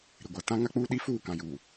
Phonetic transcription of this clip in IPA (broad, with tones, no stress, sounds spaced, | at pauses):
ɾ ɪ˨ ɡʷ a˨ t ã˦ ŋ a˦ k͡p uː˦ ɗ i˦ f uː˦˨ k ã˨ j uː˨